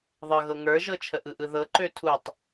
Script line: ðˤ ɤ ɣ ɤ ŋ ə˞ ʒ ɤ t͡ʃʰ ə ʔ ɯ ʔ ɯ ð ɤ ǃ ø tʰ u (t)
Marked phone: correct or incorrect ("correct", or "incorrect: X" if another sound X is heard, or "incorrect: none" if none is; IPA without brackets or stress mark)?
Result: incorrect: tˤ